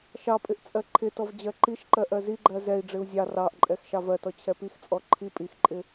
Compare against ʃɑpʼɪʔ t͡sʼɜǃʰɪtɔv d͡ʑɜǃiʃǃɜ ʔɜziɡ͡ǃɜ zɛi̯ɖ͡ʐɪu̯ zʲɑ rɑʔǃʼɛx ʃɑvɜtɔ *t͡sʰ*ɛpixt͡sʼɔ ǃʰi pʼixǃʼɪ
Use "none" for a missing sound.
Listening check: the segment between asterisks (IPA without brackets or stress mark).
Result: t͡ɕʰ